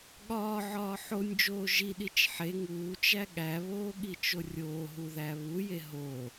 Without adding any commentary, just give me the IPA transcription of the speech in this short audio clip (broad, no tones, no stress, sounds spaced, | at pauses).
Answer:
ɠ ɒː ʕ ɒː ħ o nʲ d͡ʒ oː ʒ i ɗ i t͡ʃ ħ e ŋ uː t͡ʃ æ ɠ æ β oː ɠ i t͡ʃ o rʲ oː ɦ u ð æ β u j e ɦ o